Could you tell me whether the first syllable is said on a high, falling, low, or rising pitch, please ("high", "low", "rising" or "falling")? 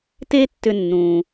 high